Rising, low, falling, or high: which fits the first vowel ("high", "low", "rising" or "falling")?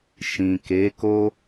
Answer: low